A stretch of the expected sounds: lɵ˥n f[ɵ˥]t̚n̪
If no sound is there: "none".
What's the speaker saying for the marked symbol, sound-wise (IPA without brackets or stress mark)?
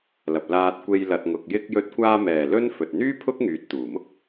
ɵ˨